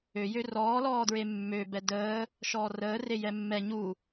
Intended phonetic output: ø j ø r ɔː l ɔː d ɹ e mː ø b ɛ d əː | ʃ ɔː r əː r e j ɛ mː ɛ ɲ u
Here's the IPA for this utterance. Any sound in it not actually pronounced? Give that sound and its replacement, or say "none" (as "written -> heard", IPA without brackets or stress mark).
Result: none